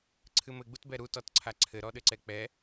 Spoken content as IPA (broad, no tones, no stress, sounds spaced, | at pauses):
ǀʰ ɨ m ɘ ɡ͡b u t b ɛ ɾ u t ɔ t ǀʰ a ǀʰ ɘ ɾ ɔ ɗ ɘ ǀ ɛ k͡p ɛ